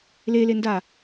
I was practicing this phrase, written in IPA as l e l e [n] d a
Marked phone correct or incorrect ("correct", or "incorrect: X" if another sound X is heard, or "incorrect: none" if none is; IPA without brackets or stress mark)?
correct